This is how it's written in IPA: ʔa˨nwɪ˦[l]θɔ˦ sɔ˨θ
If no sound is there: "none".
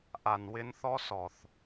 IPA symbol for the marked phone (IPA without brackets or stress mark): n